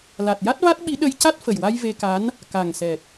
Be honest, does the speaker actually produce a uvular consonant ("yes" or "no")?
no